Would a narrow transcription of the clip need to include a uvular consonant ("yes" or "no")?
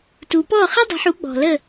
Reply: yes